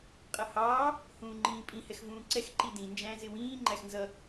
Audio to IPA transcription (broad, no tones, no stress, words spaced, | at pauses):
qʼʌhɑː | hũːŋ͡ǃĩːpʼĩ hɛxvũːǀɛx ǃidĩ nd͡ʒæ̃zɪwĩː ŋ͡ǃæxnzʌ